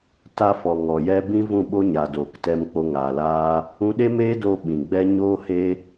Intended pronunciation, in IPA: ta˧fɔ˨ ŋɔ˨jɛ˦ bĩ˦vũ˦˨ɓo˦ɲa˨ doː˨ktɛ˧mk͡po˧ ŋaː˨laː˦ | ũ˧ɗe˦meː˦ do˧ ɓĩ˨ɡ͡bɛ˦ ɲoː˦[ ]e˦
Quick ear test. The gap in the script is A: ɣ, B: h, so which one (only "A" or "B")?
B